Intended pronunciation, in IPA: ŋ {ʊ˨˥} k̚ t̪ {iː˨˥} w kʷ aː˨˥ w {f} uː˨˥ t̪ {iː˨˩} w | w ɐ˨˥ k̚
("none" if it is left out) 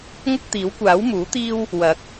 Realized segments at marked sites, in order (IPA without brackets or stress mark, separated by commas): ʊ˥, iː˨˥, m, iː˥